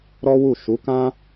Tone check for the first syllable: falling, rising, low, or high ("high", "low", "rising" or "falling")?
high